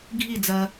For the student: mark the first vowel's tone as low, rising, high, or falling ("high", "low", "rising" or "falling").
falling